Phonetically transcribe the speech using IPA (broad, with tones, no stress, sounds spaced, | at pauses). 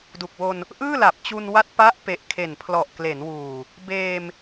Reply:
d u˨˩ k̚ w o˧ n | ʔ ɯː˥˩ l a˨˩ p̚ t͡ɕ u˧ n w a˦˥ t̚ p a˦˥ ʔ p e˨˩ ʔ kʰ e˨˩ n pʰ l ɔ˨˩ ʔ k l e˩˦ n w uː˨˩ | b eː˧ m